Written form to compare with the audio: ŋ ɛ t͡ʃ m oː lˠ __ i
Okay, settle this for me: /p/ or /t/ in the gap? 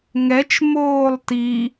t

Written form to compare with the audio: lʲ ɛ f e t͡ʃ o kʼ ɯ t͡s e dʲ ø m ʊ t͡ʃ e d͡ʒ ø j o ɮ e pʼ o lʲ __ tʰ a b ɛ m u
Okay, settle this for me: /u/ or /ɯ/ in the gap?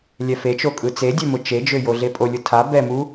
ɯ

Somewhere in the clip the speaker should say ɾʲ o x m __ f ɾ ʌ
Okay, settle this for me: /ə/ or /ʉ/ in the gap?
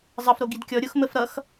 ə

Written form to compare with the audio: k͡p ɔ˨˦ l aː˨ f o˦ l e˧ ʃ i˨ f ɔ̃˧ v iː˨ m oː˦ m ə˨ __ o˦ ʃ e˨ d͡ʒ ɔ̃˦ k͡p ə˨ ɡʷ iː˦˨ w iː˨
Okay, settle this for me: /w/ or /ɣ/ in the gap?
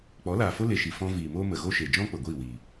ɣ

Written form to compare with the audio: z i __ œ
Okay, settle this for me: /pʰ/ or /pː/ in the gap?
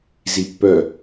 pː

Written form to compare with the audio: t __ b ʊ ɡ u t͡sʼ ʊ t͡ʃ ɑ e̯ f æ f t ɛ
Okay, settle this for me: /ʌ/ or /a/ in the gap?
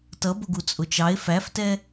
ʌ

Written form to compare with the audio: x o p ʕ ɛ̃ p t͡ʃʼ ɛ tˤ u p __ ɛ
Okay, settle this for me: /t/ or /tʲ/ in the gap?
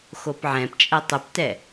t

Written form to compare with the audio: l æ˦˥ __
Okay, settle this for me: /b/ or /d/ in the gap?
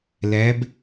b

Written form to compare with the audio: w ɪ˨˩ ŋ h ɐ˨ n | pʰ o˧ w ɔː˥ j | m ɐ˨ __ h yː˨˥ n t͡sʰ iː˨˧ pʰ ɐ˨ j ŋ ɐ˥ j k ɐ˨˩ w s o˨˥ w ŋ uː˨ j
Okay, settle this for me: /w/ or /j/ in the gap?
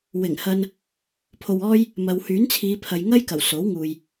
w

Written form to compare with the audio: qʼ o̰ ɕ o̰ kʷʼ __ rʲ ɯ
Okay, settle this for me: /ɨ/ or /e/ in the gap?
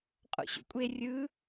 e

